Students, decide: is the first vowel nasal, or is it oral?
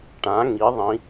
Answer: nasal